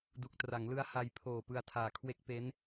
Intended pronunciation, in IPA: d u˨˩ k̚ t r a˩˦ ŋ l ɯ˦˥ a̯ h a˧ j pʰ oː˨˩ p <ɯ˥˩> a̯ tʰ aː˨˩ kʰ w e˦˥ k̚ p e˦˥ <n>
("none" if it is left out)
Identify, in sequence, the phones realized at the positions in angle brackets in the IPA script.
ɯ˧, n

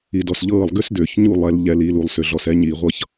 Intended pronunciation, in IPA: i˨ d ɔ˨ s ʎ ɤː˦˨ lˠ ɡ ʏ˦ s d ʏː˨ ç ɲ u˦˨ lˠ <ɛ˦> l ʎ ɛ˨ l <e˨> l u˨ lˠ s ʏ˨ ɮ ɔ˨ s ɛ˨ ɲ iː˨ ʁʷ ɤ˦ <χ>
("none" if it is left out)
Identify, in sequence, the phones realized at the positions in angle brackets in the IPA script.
ɛ˨, i˨, ç

